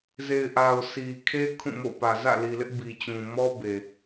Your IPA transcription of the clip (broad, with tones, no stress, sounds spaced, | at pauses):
z e˨ ɪ̯ ʔ a˨ ʊ̯ sʰ i˨ kʰ e˦ kʰ ũ˦˨ m o̰˦˨ p ä˨ z ä̰˦˨ l i˨ l ɪ˦ ʔ b i˨ t͡ɕ ũ˨ m ɔ˦ b e˨